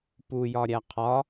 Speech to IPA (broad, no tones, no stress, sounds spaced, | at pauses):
p u j ɒ ɾʲ æ qʰ ɒ